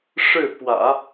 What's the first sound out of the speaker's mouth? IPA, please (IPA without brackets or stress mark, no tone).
ʂ